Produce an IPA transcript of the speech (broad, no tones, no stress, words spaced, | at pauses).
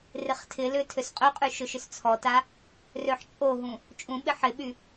rɪχtʰɪlʏ tʰøsqʼøqʼy ʃʊʃʏst͡sʰɔta | røħt͡ʃʼoɦũ | t͡ʃʼũɓɪ ħɪɓy